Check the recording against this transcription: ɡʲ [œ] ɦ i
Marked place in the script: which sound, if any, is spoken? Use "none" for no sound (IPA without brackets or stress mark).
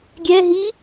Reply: ɛ